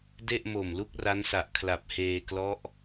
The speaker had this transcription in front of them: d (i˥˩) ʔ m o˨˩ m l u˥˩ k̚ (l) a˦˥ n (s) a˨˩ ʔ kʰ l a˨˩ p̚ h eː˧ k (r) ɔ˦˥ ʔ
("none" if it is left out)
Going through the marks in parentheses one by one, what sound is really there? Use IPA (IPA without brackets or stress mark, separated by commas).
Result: e˥˩, r, s, l